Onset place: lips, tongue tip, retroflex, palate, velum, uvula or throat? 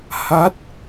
throat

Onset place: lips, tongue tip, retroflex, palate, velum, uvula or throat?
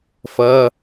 lips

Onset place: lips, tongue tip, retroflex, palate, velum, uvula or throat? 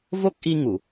lips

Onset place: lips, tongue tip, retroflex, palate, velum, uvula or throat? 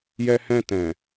palate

